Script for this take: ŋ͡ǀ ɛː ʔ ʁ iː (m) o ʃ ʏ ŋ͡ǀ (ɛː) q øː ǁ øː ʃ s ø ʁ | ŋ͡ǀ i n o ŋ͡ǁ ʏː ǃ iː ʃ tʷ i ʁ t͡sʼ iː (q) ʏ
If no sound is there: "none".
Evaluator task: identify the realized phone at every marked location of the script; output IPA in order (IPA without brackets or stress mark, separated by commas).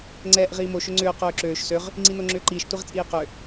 m, ʏː, q